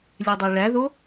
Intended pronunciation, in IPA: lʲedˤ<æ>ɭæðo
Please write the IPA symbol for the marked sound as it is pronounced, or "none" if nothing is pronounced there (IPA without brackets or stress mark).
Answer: æ